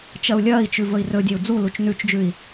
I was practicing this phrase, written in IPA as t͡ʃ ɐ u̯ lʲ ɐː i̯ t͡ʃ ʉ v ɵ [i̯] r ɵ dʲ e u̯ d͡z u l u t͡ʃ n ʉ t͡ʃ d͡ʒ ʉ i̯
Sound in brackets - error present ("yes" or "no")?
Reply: no